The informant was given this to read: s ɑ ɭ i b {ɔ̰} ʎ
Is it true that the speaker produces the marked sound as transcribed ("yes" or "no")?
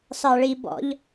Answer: yes